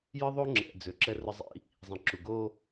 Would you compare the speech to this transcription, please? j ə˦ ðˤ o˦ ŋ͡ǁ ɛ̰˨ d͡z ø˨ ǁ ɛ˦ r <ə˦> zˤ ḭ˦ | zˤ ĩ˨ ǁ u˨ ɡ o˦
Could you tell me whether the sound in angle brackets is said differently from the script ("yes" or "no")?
no